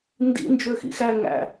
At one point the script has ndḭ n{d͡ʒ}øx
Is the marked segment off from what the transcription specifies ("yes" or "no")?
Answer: no